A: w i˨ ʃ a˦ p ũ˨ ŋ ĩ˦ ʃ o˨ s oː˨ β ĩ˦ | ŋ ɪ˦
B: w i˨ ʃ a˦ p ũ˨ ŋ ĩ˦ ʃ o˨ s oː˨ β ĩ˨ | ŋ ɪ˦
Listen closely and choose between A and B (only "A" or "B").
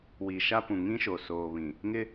B